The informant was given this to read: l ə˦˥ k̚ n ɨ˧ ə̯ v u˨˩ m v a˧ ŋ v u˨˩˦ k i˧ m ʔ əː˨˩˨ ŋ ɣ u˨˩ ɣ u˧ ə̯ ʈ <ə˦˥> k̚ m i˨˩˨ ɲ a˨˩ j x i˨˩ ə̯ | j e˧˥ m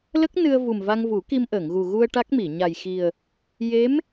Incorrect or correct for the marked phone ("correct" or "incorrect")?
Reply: incorrect